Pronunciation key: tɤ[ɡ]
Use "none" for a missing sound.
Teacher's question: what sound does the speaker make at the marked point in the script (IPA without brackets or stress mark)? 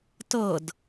d